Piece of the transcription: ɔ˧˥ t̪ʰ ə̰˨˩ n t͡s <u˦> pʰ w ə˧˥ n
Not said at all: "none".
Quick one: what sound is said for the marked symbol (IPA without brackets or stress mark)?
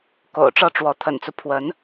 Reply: u˦